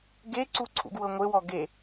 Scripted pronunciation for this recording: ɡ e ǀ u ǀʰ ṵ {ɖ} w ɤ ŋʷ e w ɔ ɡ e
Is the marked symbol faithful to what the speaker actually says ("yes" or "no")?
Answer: no